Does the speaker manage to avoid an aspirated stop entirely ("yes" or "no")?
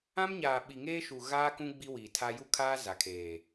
no